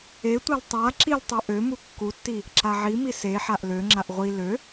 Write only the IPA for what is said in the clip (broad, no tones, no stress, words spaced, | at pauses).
etʷal tˤa ǁiltˤø ʔø mukːutːi | ǁaʕimi seħaʔ løŋ͡ǁaʔ ʁʷi lø